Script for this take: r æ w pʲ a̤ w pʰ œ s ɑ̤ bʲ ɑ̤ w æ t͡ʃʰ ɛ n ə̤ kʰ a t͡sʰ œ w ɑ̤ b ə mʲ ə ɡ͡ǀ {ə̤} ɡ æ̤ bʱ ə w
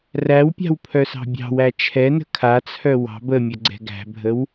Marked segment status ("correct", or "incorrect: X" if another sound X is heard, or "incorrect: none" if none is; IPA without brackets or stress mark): incorrect: ɛ̤